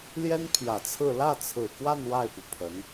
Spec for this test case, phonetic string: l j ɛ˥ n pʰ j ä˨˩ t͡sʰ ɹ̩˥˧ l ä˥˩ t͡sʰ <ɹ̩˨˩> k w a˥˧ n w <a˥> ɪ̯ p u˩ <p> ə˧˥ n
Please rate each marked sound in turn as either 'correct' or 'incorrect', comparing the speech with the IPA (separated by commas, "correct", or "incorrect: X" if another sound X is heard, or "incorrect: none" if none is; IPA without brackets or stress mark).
correct, incorrect: a˥˩, incorrect: pʰ